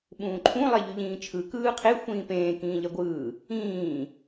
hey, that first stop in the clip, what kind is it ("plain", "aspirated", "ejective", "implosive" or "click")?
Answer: implosive